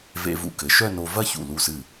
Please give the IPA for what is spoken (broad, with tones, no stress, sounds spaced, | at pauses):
v ḛ˧ v ṵ˧ k ɘ˩˧ ʃ œ˥˧ n o˧ v ɐ˥˧ ç ṵ˧˩ l u˧˩ s ɨ˧˩